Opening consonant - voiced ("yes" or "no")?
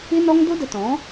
yes